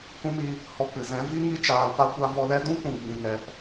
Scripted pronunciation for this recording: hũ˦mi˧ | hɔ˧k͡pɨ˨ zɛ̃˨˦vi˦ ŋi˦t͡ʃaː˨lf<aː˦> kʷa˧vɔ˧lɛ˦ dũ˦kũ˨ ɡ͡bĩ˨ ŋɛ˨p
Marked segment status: incorrect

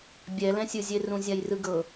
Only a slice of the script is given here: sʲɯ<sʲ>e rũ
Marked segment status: incorrect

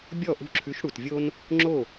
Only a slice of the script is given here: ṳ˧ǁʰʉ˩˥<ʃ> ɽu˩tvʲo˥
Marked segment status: correct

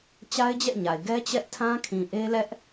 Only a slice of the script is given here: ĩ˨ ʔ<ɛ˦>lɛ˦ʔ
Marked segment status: incorrect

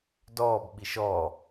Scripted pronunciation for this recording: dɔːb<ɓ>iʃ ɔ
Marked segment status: correct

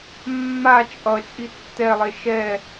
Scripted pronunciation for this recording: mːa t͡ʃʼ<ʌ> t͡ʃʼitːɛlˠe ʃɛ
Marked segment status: correct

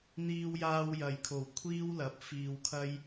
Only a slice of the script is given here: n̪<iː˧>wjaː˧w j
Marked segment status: correct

